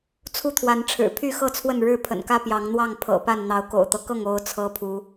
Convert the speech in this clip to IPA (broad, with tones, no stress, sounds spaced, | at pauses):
t͡sʰ u˥˨ t̪ʰ w a˨˦ n ʈ͡ʂʰ ɻ̩˨˩ pʰ y˥˨ x ɤ˥˨ t͡sʰ w ə˥˨ n ɻ ɻ̩˥˨ pʰ ə̰˨˩ n k ä˦ p j ɑ˨˦ ŋ n̪ w ɑ˥˨ ŋ pʰ ɤ̰˨˩ p a˥˨ n n̪ ɑ˨˦ ʊ̯ k o̰˨˩ ʊ̯ t̪ ɤ˦ k ɤ˥˨ ŋ o˦ ʊ̯ t͡sʰ ɤ˦ pʰ u˨˦